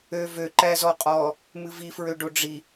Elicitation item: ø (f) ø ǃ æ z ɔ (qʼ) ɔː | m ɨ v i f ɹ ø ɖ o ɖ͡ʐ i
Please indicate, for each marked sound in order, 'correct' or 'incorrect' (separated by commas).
incorrect, correct